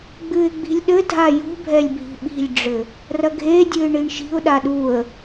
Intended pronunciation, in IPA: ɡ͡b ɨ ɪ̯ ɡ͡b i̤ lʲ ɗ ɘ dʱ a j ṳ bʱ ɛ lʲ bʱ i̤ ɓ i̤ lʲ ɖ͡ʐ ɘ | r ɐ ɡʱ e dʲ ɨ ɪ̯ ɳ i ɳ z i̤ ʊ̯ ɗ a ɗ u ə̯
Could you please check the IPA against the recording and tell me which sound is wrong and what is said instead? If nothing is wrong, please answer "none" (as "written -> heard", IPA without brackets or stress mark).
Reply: z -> ʃ